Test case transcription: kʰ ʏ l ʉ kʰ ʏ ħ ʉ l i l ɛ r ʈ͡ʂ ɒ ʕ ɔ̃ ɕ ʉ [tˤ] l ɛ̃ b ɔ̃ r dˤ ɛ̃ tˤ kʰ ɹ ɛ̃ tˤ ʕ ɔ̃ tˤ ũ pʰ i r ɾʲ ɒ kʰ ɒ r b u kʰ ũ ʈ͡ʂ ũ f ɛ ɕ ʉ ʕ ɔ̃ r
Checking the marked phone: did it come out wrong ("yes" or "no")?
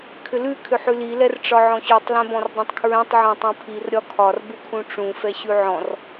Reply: no